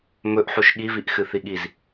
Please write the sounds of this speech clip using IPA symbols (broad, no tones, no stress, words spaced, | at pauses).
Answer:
mɵʔħuʃ ɠiviʔxɨθi ɠiz